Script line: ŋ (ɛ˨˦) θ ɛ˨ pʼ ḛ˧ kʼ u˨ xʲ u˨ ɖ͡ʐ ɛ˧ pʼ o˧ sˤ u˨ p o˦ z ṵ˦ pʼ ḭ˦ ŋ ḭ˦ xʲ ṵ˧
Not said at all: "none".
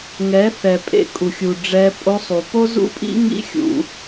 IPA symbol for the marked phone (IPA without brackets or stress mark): ɛ˨˦